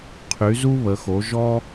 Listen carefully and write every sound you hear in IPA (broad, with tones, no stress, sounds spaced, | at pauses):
qʰ y˩˧ z u˦ β ə˩˧ x o˩˧ ʒ ɔ˦